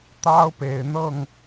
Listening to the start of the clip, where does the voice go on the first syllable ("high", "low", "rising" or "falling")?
high